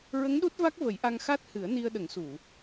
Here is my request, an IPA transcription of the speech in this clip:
ɹ ə˧˥ ŋ ɗ u˦˥ t̚ v a˦˥ k̚ v ə˨˩˦ j ʔ a˧ ŋ x a˦˥ t̚ h ɨ˨˩˦ ə̯ n i˧ ə̯ ɗ ə˨˩˦ ŋ s u˨˩˨

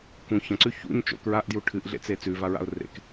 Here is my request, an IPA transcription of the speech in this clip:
k ũ ç ɐ̃ ǀ ʉ ç ṵ ɲ t͡ʃ o̰ k ɹ a ʔ d j u ʈʰ ɨ ʔ ɮ ḛ t͡s e t͡s ʉ v a ɹ a̰ ʊ̯ r ḛ k

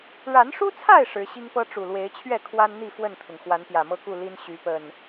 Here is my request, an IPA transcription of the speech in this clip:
ɻ a˨˦ n ʂ u˦ t͡sʰ a˥˨ ɪ̯ ʂ ɻ̩˨˦ ɕ i˦ ŋ p ɤ˦ ʈ͡ʂ u˨˩ l w e˨˦ ɪ̯ t͡ɕʰ ɥ ɛ˥˨ kʰ w a˦ n n̪ i˥˨ f w ə˥˨ n t̪ʰ ʊ˩ ŋ x w a˨˦ n p j ä˨˩ m ɤ˥˨ k u˥˨ l i˦ n ɕ y˨˦ p ə˨˩ n

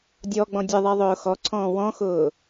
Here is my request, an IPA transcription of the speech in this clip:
dʲ ɔ ɡ͡b ɔ̃ dʲ ə ðˤ i ðˤ ʊː x ɔ ǀʰ ɔ̃ː w ɔ̃ x ʊː

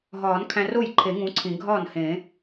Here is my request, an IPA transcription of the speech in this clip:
ɦ ɒː˨˩˦ n kʰ æ̃˧ r o˥˩ j ǃʰ e˨˩˦ ŋ ũ˧˥ ǀʰ ĩ˨˩˦ ɡʱ ɒː˥˩ n h ẽ˨˩˦

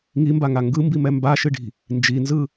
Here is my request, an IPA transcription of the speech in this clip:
ŋ i m b a ŋ a ŋ ɡ ɯ m b i m ɛ m b a ʃ ɨ ɖ i̤ | n d͡ʒ i n z ɯ

